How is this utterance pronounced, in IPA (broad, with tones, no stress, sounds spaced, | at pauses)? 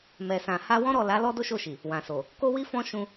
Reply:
m ɛ˨ s ã˨ h a˧ w ɔ̃˦ ɾ ɔ˦˨ l a˨˦ l ɔ˦ d o˦ ʃ o˦˨ ʃ i˨ | w ã˨ s o˨ | k o˦ w i˦ f ɔ̃˦ ʃ ũ˧